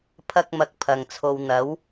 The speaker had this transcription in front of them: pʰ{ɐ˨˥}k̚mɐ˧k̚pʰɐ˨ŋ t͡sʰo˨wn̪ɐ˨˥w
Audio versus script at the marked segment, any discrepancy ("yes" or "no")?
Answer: yes